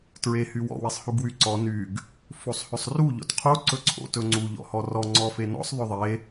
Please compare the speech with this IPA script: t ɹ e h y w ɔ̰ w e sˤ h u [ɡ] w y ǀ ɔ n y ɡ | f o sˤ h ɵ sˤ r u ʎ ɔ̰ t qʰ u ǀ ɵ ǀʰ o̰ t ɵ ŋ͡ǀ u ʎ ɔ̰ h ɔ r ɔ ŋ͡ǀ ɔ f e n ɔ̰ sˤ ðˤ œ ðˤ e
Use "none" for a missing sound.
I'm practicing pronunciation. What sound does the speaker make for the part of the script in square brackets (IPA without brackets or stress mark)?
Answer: ɡ